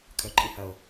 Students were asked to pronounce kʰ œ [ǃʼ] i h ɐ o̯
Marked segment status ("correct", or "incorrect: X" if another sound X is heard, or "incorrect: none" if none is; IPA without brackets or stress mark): correct